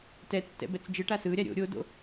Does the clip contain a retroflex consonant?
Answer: yes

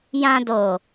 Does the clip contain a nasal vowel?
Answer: yes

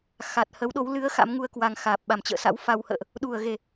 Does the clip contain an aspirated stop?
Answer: no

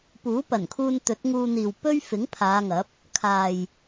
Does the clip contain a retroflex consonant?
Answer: no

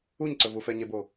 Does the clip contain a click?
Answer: yes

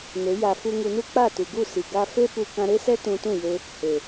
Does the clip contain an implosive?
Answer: no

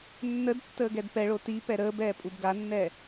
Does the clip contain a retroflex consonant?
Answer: yes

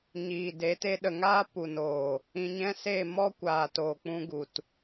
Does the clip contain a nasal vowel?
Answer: yes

